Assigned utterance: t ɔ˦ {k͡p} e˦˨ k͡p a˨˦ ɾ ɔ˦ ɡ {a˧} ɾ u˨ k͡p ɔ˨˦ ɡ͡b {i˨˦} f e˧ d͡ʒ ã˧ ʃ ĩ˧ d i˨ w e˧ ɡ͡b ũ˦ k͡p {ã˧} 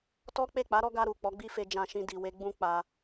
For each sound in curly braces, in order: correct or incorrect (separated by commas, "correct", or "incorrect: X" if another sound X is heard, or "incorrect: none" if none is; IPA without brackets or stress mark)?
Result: correct, correct, incorrect: i˦, incorrect: a˧